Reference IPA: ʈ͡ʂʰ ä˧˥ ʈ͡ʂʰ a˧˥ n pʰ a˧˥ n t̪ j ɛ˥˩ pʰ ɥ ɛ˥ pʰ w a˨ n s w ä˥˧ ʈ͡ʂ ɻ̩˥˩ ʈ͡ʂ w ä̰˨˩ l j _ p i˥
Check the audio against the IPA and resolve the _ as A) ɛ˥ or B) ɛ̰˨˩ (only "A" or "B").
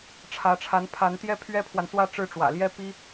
A